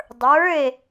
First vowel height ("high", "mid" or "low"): mid